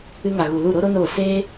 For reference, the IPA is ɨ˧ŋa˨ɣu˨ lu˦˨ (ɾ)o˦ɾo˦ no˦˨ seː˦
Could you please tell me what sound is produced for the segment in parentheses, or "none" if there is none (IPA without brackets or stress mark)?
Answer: ɾ